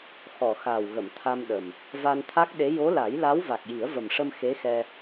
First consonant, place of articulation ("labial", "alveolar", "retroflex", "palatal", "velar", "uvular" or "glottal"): velar